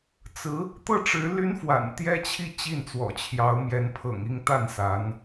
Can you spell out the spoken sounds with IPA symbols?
t͡s ɹ̩˧˥ | t̪ ɤ˥˩ ʈ͡ʂ ɻ̩˧˥ l y˥ n f w a̰˨˩ n t̪ j ɛ˥ t͡ɕʰ i˥˧ t͡ɕ i˥˩ n t͡s w ɔ̰˨˩ t͡ɕʰ j ɑ˧˥ ʊ̯ m j ɛ˧˥ n pʰ ɤ̰˨˩ ŋ i˥˧ ŋ t̪ a˥˩ n s a˧˥ n

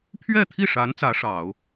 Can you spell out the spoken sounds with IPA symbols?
pʰ ɥ ɛ˥˧ t̪ʰ i˥˩ ʂ a˧˥ n t͡s ä˧˥ ʂ ɑ˨˩˦ ʊ̯

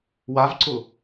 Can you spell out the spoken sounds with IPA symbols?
w a v ǀ ʊ

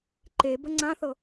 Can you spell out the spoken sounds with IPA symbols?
ǃ e b ə ŋ͡ǀ ã θ ɤ

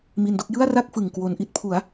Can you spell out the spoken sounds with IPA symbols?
m i˧ n d o˥˩ k̚ j ɯ˥˩ a̯ r a˥˩ k̚ f ɯ˨˩ ŋ k w o˧ n ʔ i˥˩ t̚ pʰ u˩˦ a̯

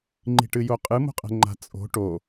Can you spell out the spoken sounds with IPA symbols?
ŋ͡ǃ i̤ ʈ ɨ j o qʼ ɨ m o̤ qʼ ɛ̤ ŋ͡ǃ a̤ t͡sʼ o̤ ʈ o

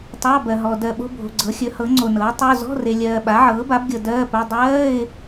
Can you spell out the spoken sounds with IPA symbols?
tˤ ɑ˧˥˧ b ɜ˨ ɦ ɔ˨ d ɜ˨ ɓ o̤˧˥˧ bʱ o̤˨ ɡ͡ǀ ɤ˩˥ xʲ ɵ˩˥ h ɤ˩˥ ŋ͡ǀ o˨ n ɤː˩˥ tˤ o˧˥˧ z ɔ̤˧˥˧ r e˨ lʲ ɜː˨ ɓ a˩˥ ʕ ɤː˩˥ b a˩˥ b ɡʲ ɤ˨ d ɜː˧˥˧ p ɵ˧˥˧ dˤ ɜː˧˥˧ ɪ̯

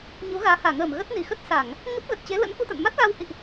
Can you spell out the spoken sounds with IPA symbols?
ɲ u˨˦ ɣ aː˨˦ h aː˧˩ ŋ əː˧˩ m ɣ ə˦˥ t̚ n i˧˩ x ə˦˥ t̚ s a˧˩˨ ŋ | ŋ ə˦˥ p̚ ɣ ə˨˩ t̚ t͡ɕ e˨˦ l ə̰˧˥ n k u˧ t̪ a̰˧˨ n m a˦˥ t̚ ɣ a˧ w h ḭ˧˨ ʔ

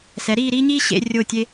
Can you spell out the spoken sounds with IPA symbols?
s ɛ˩˧ ɾ iː˥˧ ɾ iː˥ ɲ iː˥ ɕ ḛ˧ rʲ o˧˩ tʲ e˧

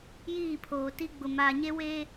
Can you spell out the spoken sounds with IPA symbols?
j iː˦˨ pʰ oː˨ t i˦ ɡ͡b ʊ˨ m aː˨ ɲ e˦ w eː˦

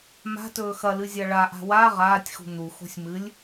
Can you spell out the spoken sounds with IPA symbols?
m a̤ t ɵː x ɐ l ɨ zʲ a ɭ a ʔ a̤ w a ʁ aː tʲ x ṳ n̪ u x o̤ sʲ m ɨ lʲ

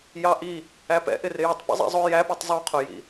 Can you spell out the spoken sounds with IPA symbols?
j ɑ ʔ i | æ p ɛ̰ ʔ ɪ r ɪ j ɪ tˤ p ɛ̰ zˤ ḭ zˤ ʊ j æ p u tˤ zˤ u qʰ ʊ j ḭ

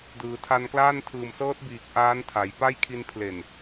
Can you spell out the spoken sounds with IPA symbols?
d ɯː˩˦ tʰ a˧ n k l aː˥˩ n tʰ ɯː˨˩ m s ɤː˦˥ t̚ b iː˨˩ k̚ ʔ aː˦˥ n tʰ a˩˦ j p a˥˩ j kʰ i˧ n pʰ l e˨˩ n

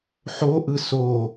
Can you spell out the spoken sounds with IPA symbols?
ħ o ʔ ɯ s o

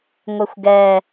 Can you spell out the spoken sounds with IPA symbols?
ŋʷ ɪ xʷ ɡ ɛ

